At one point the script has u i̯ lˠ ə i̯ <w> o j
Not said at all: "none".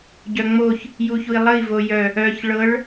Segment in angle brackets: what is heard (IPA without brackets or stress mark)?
v